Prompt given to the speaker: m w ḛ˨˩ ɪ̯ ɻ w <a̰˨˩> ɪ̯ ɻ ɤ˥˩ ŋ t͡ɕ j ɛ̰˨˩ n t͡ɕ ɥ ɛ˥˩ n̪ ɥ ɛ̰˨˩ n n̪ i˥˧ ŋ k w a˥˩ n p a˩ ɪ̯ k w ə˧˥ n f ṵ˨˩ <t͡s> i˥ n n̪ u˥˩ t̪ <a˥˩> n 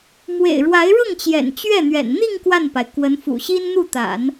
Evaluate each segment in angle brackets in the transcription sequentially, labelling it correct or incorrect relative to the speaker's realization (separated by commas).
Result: incorrect, incorrect, incorrect